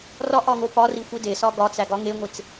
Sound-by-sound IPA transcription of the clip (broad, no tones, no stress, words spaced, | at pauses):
rɒʔɒŋo pɒrixʷi desɒ ɡɒt͡sæɡɒ ŋeŋʷet͡s